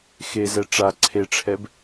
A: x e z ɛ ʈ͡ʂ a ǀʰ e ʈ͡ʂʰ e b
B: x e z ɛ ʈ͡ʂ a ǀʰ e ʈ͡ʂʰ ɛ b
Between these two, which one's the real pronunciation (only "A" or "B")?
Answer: B